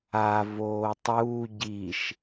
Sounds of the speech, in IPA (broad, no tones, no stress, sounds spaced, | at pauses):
a v oː tˤ uː ɟ i ʃ